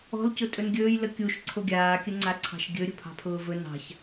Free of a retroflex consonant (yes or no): yes